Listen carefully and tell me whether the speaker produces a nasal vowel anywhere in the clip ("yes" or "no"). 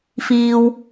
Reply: no